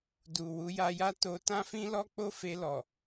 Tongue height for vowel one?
high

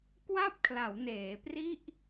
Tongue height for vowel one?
low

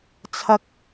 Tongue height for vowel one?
low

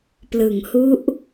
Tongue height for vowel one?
high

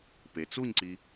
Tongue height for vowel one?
mid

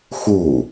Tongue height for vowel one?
high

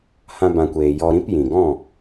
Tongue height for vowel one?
low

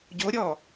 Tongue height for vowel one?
mid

